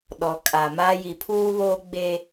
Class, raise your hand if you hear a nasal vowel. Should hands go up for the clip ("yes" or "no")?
no